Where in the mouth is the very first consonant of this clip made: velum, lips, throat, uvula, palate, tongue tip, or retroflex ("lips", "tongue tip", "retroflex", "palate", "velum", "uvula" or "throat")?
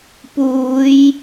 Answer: lips